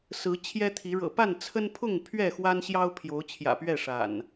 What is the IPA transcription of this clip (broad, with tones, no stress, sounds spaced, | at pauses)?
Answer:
s ɹ̩˨˦ t͡ɕʰ j ɛ˦ t̪ʰ i˨˦ ɻ ɤ̰˨˩ p a˥˨ n t͡sʰ ə˦ n pʰ ʊ˥˨ ŋ pʰ ɥ ɛ˥˨ x w a˦ n ɕ j ɑ˦ ʊ̯ pʰ j o˨˦ ʊ̯ t͡ɕʰ j ä̰˨˩ p ɥ ɛ˥˨ ʂ a̰˨˩ n